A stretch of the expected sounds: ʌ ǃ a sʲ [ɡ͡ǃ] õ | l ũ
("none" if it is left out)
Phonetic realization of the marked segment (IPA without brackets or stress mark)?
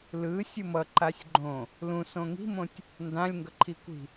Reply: ɡ͡ǃ